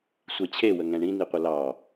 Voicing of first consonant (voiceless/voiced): voiceless